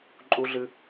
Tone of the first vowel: high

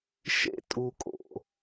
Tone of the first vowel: high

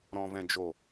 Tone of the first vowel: low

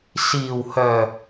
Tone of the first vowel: low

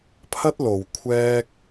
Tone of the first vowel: high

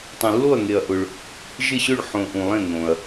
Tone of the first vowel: low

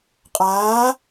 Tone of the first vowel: rising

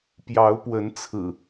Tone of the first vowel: rising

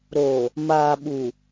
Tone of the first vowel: low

